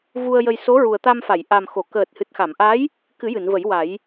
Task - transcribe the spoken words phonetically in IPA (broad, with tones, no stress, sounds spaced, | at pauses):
v u˧ ə̯ j ə˧ j s o˧˥ ɹ u˨˩ ə̯ t̪ a˧ m f a˨˩˨ j ʔ a˨˩ m x o˨˩˨ k əː˨˩ t̚ h ɨ˨˩ t̚ x a˨˩˨ m ʔ a˧˥ j | k ɨ˨˩˦ j ɨ˨˩˨ n v ə˨˩˦ j w a˨˩˦ j